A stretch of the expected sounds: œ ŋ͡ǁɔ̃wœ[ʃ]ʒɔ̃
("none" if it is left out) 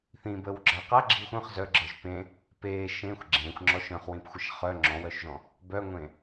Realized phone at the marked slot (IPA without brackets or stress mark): ʃ